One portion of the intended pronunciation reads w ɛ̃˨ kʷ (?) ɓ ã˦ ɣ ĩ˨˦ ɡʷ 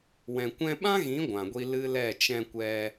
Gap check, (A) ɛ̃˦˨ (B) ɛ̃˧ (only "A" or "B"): B